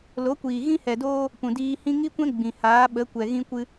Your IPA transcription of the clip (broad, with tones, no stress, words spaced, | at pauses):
lo˨˦kʷiː˨ ɣĩ˦hɛ˨doː˦ | pũ˨diː˧hĩ˦ ŋi˦kʷɛ̃˦ ɡ͡bĩ˨ haː˨˦ɓə˨˦kʷɛ˨ ɣĩ˧kʷɨ˧